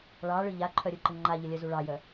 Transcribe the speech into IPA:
ɭ ɑ ɭ ɯ ʎ a ǃʰ œ ɾʲ ɯ ǃ ə ŋ͡ǃ a ʎ ə lʲ œ z u ɭ ɑ j œ

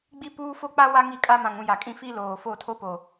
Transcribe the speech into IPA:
ɡ͡b i˦ p uː˦ f o˦ k͡p a˦ w a˦ ŋ i˦˨ kʼ a˦ m ã˨ ŋ ũ˨ j a˨ kʼ ĩ˦˨ f i˦ l oː˨ f o˦˨ tʰ o˦ p o˨

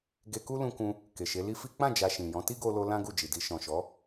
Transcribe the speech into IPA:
ɡ e˧ k u˦ l ũ˧ k ũ˧ | k e˨ ʃ e˨˦ l i˦ f i˦ k͡p ã˦˨ d͡ʒ a˧ ʃ ĩ˨ j ɔ̃˨˦ t i˦ ɡ o˧ l o˧ l ã˦ ɡ u˦˨ d͡ʒ i˨ d i˧ ʃ ɔ̃˨ ʃ ɔ˨˦

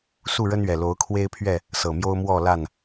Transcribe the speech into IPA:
s u˥˨ ɻ ə˦ n ɥ ɛ˨˩ l o˨˦ ʊ̯ kʰ w e˦ ɪ̯ pʰ ɥ ɛ˥˨ | s ɤ˨˩ m j o˦ ʊ̯ m w ɔ˥˨ l a˥˨ n

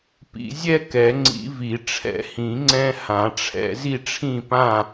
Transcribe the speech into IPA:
p ḭ˨˩˦ zʲ ɛ˥ k ɛ˨˩˦ ŋ͡ǀ ḭ˨˩˦ v i˨˩˦ ʈ͡ʂʰ ɛ̰˨˩˦ h ĩ˨˩˦ ŋ͡ǀ ɛ̃˥ h ã˨˩˦ ʈ͡ʂʰ ɛ̰˨˩˦ z i˥˨ ʈ͡ʂʰ ĩ˥˨ p ã˥˨

